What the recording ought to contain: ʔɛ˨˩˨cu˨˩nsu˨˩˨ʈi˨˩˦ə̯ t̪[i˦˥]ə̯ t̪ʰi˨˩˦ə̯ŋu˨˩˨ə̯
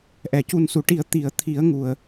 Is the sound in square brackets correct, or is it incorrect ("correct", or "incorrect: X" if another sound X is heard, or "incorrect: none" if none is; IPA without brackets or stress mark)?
incorrect: i˨˩˨